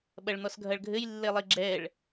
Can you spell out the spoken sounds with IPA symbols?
ɓ ɐ ɭ n̪ ɔ s ɡʱ ɐ ɭ ɡʱ ɘ j lː e lˠ i ɡ͡ǁ ɛ ɭ

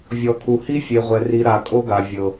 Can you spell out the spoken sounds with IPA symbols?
vʲ ɔ˨ kʰ u˨ h i˦ fʲ e˨ ʁʷ ɛ˨ r i˨ ɾ a˨ kʼ o˦ ɡ a˨ vʲ ɤ˨

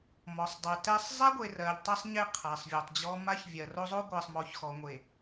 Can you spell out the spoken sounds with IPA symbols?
m ɔ˨ sˤ dˤ ɛ˨ t ɛ˦ sˤ zˤ ɛ˦ ɡʷ e˨ r ɜ˨ ʎ tˤ ɛ˦ sˤ ɲ e˦ qʰ a˨ sˤ vʲ ɔ˨ tˤ d͡ʑ ɔ˦ m a˦ ç vʲ ɜ˨ r o˦ zˤ o˦ ɡʷ ɜ˨ sˤ m ɔ˨˦ ç x ɔ˨ ŋʷ e˨

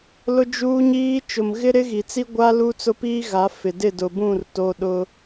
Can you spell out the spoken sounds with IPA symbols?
l ʊ˦ d͡ʒ uː˦ ɲ iː˦ t͡ʃ ʊ˨ m ɣ ɪ˦ ɾ ɪ˦ ɣ i˨ t͡s i˦ ɡʷ a˦ l u˦ t͡s ʊ˦ p iː˦ ɣ a˨˦ f ɪ˨ d ɪ˦˨ d ʊ˨ b ũ˦˨ r t o˦ ɗ ʊ˦

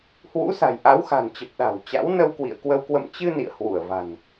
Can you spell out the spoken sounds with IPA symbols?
h w ṵ˧˥ s a̤˨˩ j ʔ a˨˦ w x a̤˨˩ n t͡ɕ ə˨˩ p̚ ɗ a̤˨˩ w t͡ɕ a̰˧˥ w n ə˧ w k w ḭ˧˨ ə̯ k w ə˧ w k w ə̰˧˨ m t͡ɕ ɨ˧ n ḭ˧˨ ə̯ h w u˧˩ ə̯ v a̤˨˩ n

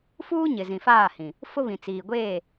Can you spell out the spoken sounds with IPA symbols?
f uː˦ ɲ ɪ˨ z ĩ˨ f aː˦˨ h ĩ˨ | f ʊ˦ β ĩ˨ t͡s iː˨ ɡʷ eː˦˨

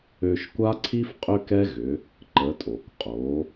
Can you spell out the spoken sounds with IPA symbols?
ø˧ ʃ kʷ a˥ ǀʰ i˥ f qʼ ʏ˥ k ɛ˥ ɣ ʏ˩˧ | ǃ ə˩˧ tʼ o˩ k qʼ o˩˧

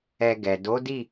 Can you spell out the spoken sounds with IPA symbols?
ɛ˧ ɡ ɛ˨ d o˨˦ d i˦˨

